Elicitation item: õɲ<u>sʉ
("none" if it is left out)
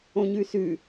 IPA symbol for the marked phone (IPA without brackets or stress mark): ʉ